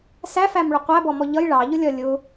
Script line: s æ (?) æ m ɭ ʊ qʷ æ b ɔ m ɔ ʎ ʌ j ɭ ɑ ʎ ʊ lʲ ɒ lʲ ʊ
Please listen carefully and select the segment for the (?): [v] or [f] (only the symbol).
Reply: f